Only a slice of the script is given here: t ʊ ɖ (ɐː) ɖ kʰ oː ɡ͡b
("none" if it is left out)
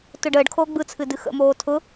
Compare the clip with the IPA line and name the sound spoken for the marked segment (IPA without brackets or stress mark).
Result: əː